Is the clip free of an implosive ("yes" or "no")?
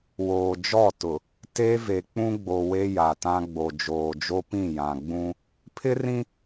yes